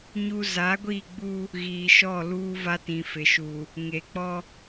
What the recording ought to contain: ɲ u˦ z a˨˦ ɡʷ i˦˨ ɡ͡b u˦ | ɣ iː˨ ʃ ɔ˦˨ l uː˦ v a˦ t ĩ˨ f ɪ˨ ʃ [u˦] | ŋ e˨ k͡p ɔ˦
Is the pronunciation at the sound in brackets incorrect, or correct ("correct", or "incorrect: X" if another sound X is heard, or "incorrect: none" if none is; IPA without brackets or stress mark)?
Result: incorrect: u˨